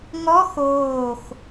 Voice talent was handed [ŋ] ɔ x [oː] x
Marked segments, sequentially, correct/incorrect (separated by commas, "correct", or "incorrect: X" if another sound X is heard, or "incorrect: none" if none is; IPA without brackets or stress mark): correct, correct